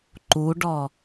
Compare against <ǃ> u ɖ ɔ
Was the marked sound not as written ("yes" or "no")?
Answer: no